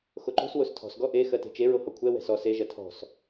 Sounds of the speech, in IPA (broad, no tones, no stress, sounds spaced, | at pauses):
x o ǃ o̤ s w o s tʰ ɔ̤ s ɡ ɔ ʔ e x ɜ t e̤ t͡ʃ e ɹ o h ɔ kʷʰ ɛ w ɛ̤ s ɔ s e ʒ ɜ tʰ ɔ̤ s